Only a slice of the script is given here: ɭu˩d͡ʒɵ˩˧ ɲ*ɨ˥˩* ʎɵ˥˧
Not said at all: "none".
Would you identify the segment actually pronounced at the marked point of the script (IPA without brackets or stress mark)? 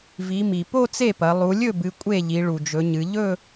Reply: ɨ˩˧